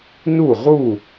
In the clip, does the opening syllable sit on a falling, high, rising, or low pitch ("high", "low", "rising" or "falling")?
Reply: falling